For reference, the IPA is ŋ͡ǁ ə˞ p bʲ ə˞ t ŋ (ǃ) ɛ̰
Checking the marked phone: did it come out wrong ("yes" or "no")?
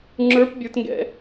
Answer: yes